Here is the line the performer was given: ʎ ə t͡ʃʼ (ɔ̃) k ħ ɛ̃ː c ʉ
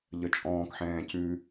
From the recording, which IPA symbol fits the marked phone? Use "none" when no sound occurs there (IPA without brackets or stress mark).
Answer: ɔ̃ː